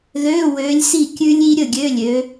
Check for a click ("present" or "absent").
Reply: absent